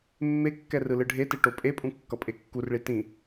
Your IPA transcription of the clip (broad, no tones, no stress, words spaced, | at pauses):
mːekːɛ rɯlɯɖʱete ʈopʼepʼũ kːʌpʼekːurɭi tĩ